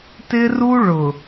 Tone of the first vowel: high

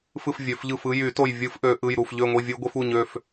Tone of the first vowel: falling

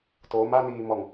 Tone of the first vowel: rising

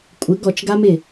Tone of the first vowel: rising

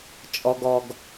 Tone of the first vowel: low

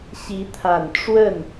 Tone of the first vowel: rising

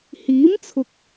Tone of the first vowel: rising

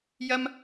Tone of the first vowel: high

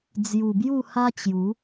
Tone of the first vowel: low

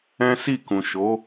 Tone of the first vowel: high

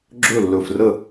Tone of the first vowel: falling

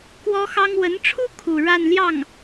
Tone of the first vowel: high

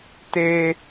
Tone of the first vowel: low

